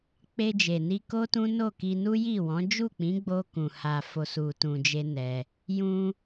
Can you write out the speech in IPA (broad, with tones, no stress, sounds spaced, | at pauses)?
k͡p e˧ d͡ʒ e˨ n i˧ k o˦ t ũ˦ n o˦˨ k i˧ n u˦ j i˦˨ w ɔ̃˨˦ d͡ʒ u˦˨ k͡p ĩ˨˦ ɡ͡b o˧ k ũ˨ h a˨ f o˨ s u˨ t ũ˧ d͡ʒ e˦ n ɛ˧ | j ũ˧